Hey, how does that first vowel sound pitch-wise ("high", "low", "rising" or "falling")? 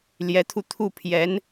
rising